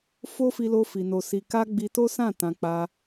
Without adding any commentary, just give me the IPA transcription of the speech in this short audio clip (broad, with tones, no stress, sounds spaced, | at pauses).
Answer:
f o˦ f i˧ l o˧ f i˨ n o˨ s i˨ k a˧ ɡ͡b i˧ t o˦ s ã˦˨ t ã˧ k͡p a˧